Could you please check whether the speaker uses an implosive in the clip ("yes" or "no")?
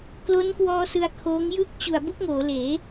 no